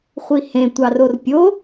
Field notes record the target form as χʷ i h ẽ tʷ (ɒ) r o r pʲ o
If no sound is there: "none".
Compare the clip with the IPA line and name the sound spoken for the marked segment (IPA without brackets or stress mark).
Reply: ɑ